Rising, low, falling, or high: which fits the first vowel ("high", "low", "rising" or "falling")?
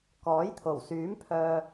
rising